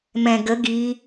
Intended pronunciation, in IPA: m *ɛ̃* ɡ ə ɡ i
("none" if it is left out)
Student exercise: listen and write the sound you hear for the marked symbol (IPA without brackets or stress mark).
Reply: ɛ̃